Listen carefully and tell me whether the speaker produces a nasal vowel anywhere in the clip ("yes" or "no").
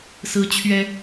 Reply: no